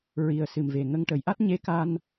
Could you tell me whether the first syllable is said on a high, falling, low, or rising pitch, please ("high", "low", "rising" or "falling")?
low